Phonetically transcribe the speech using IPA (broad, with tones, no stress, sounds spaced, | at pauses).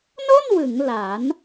n o˥˩ n w ɯ˩˦ ŋ l aː˩˦ n